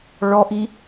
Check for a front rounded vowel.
absent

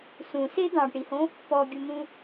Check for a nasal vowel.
present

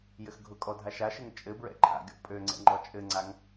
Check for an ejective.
present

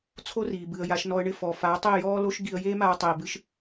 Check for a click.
absent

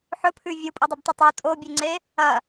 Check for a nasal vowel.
absent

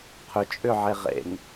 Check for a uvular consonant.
present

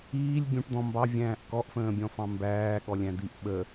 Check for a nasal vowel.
present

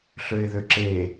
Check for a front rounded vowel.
present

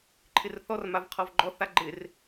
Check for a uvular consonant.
present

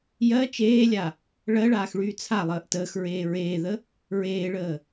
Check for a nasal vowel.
absent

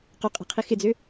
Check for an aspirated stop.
present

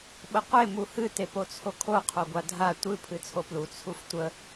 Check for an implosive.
present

